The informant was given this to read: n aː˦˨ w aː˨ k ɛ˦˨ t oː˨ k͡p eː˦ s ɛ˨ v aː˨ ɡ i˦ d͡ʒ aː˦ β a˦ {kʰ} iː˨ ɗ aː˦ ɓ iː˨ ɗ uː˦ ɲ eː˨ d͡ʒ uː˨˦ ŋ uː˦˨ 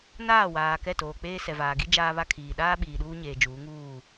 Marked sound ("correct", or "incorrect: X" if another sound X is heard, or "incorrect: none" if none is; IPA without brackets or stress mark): correct